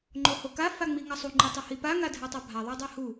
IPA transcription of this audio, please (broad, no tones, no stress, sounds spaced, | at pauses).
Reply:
ŋ͡ǃ o h o k a f a ŋ͡m i ŋ ʌ sˤ u ŋ͡ǃ i tˤ ʌ h i p a ŋ a dʱ ɛ tˤ a bʱ a ðˤ a dˤ e h u